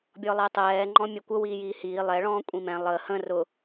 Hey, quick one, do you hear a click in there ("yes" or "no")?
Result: yes